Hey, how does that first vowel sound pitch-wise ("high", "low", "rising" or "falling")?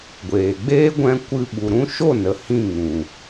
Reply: low